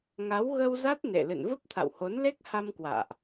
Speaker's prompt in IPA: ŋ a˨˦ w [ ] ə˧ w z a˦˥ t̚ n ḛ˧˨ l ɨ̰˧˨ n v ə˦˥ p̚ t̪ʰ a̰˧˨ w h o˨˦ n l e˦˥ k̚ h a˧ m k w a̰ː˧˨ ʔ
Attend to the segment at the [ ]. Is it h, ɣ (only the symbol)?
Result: ɣ